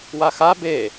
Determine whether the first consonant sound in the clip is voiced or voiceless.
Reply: voiced